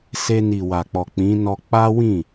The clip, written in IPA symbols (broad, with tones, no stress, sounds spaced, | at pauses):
s e˧ n i˨ w a˨ k͡p ɔ˨ k͡p ĩ˨˦ n ɔ˧ k͡p a˦ w ĩ˦˨